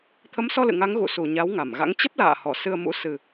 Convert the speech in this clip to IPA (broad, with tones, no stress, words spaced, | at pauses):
t̪ʰə˨˦msɔ˧ lɨ̰˧˨ŋa˨˦ŋ ɣṵ˧˨su˧˩ ɲa˨˦wŋa˧˩mɣa̰˧˥ŋ t͡ɕə˦˥p̚la̰ː˧˨hɔ˧˩ sɨ˧ə̯mṵ˧˥ sɨ˨˩